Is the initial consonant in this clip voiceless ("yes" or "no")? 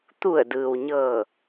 yes